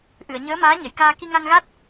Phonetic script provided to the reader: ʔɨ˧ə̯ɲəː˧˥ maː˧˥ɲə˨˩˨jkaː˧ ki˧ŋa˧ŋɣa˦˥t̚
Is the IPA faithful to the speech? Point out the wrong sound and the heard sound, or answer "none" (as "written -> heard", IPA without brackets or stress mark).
ɨ˧ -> ɨ˨˩˨